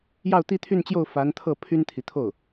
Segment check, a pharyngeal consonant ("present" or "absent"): absent